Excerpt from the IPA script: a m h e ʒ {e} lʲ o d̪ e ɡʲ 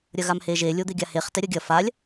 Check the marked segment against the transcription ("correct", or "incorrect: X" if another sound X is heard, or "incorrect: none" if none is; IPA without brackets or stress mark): correct